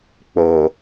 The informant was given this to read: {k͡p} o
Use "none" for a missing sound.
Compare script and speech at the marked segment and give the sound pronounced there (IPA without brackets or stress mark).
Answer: k͡p